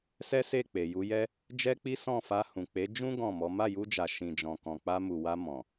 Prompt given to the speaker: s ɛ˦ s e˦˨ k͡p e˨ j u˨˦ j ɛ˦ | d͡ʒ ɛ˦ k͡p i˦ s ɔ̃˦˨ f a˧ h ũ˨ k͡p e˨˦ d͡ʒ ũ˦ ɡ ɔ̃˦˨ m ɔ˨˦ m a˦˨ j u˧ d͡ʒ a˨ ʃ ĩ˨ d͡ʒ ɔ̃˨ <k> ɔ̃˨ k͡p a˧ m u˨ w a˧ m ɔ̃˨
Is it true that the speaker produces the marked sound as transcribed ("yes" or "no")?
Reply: yes